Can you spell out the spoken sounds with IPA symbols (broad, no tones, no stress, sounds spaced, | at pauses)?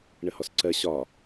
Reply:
ɳ ə h ɔ s ǀ ɜ ɕ ɒ